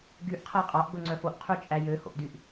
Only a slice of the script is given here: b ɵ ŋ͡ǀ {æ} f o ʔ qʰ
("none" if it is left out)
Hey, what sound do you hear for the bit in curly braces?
œ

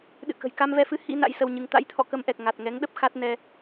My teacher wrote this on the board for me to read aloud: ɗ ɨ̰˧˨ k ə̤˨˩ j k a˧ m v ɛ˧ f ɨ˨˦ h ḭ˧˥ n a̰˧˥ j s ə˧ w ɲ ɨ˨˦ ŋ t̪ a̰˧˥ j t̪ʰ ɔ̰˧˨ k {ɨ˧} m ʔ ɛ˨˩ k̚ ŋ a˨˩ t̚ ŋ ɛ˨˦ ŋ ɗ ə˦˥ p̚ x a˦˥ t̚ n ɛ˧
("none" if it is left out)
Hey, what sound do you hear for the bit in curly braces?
ə˧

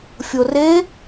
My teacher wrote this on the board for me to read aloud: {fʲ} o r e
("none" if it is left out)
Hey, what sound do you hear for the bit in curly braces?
fʲ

